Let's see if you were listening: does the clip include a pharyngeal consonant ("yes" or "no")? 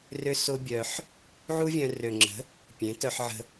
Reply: yes